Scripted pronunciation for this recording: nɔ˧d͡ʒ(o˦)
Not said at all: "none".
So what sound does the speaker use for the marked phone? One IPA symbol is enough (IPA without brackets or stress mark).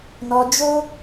o˦